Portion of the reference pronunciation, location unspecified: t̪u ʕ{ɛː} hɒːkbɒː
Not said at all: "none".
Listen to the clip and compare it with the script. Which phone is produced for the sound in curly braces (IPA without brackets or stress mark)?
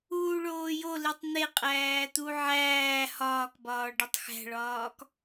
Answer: æː